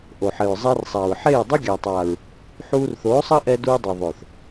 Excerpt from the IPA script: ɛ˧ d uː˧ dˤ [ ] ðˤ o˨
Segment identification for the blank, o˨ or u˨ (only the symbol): u˨